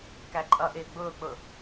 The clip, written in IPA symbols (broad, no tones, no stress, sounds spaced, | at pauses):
k æ ǃʼ ʌ ʔ ɪː ɡ͡b ʊː k͡p ʊ